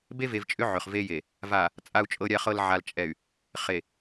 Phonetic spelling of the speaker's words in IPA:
be˦ve˨vt͡ʃʼʏ˦ ʕʏ˨χve˦je˨ | va˨ | t͡sʼa˨u̯t͡ʃʼɤ˨ɾʲa˨χɤ˨l ʕa˨l t͡ʃʼɛ˨y̯ | χe˨

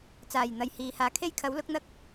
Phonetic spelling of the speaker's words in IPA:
t͡saː˨˩jn̪ɐ˨j hiː˨haː˧ kʰe˥jkʰɐ˨˥wlʊ˨˥k̚ n̪ɐ˥k̚

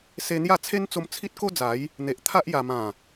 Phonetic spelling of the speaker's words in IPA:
se˧n̪ja˥˧t͡sʰe˦nt͡so˧m t͡sʰi˦t̚ko˦d͡za˨˦j | n̪e˨ʔt̪ʰa˦ʔja˨˩ mã˨˩

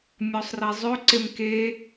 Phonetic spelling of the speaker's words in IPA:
mʲɔsˤrezˤø ǀemke

